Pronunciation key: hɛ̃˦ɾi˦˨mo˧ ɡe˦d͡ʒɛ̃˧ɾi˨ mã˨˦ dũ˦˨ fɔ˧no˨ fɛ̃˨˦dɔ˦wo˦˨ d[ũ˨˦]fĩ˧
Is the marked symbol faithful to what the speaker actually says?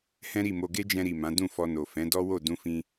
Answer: no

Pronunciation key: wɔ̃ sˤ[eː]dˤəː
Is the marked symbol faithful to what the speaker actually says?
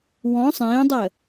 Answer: no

